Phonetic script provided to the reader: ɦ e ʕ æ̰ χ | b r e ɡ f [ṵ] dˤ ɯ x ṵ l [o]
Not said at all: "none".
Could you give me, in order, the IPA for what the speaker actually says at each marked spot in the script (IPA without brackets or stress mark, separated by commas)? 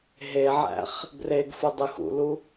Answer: u, u